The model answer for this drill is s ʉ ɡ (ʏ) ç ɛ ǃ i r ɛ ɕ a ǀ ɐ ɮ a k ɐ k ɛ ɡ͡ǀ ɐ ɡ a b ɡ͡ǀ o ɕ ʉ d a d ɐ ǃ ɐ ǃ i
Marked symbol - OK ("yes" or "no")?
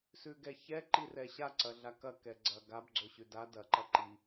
no